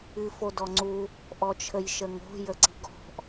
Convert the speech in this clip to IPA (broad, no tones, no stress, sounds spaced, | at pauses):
ɨ f o d ɔ ŋ͡ǀ u | ʔ ɔ t͡ʃʰ ə j ʃ ə ŋ o̤ j ə ǀ i̤ ɡ ɔ̤ ʔ